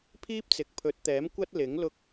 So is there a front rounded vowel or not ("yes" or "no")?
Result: no